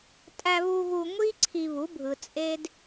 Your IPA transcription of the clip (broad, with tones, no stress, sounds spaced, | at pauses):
tʼ æ˧ β u˧ ɣ u˧ ŋʷ i˦ ǀʰ i˧ β u˨˦ bʱ ɯ˨ t͡sʼ e˦ d